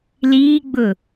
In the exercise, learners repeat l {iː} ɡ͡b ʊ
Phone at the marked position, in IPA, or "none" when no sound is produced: iː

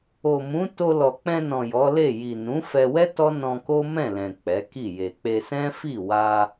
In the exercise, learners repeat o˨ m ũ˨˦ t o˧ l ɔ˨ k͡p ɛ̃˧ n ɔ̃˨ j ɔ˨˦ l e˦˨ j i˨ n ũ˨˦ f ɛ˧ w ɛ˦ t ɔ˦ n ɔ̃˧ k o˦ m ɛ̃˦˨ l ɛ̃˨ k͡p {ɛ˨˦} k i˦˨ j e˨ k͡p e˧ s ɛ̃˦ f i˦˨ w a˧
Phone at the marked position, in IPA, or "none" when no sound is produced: ɛ˨˦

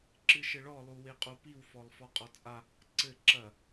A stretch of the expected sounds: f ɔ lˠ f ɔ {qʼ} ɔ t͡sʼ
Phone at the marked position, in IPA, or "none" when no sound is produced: qʼ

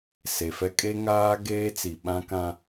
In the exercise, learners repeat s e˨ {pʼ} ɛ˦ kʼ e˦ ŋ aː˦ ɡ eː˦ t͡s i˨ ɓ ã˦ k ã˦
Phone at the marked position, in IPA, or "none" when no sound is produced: f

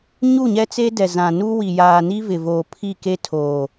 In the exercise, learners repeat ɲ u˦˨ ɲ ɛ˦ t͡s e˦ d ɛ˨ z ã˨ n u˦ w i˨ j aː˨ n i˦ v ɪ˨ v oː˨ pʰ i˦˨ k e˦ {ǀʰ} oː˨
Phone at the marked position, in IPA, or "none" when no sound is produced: tʰ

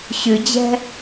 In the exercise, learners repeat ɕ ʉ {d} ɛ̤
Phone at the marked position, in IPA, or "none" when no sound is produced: d͡ʑ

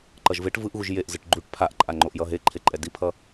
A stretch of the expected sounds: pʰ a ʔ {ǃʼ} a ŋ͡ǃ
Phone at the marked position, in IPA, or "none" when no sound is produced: ǃʼ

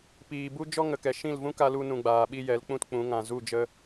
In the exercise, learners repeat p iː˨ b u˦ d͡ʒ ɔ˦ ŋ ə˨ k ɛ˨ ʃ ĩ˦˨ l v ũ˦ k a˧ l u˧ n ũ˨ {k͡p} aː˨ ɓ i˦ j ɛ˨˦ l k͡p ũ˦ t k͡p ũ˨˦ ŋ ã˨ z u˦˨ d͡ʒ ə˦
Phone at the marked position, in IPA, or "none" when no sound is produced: ɡ͡b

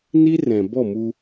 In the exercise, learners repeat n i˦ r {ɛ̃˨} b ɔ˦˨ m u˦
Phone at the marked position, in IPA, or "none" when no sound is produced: ɛ̃˨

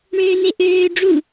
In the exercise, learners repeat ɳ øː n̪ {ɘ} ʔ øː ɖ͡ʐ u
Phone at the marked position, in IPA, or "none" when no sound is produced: e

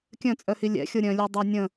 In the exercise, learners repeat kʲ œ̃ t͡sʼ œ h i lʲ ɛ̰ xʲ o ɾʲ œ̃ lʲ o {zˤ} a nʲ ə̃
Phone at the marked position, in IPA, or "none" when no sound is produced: dˤ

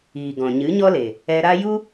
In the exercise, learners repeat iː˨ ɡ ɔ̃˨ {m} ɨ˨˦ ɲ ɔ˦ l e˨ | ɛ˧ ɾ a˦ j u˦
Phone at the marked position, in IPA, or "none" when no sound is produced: ɲ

